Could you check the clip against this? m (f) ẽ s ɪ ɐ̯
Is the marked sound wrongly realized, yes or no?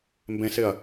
yes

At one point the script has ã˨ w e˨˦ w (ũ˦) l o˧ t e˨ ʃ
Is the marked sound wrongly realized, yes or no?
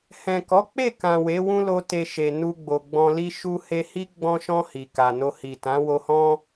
no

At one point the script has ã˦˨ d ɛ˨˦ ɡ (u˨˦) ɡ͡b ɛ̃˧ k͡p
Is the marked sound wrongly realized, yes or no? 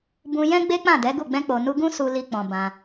yes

